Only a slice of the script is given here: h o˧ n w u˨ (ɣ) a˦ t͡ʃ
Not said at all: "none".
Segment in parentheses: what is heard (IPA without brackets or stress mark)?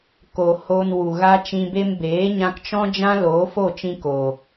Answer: ɣ